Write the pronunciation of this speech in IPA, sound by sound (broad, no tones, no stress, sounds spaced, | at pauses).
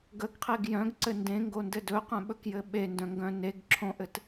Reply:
ɡ ə ɡ qʰ e ɡ j œ̃ ɡ ǀ ɘ n d ẽ ŋ ɡ o n d ɘ d ɵ q œ̃ ɓ ɵ k j ɘ ɓ e n d œ̃ ŋ ɡ œ̃ n e ɡ ǁʰ õ ʔ ɘ t